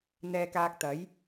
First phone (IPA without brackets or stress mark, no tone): n̪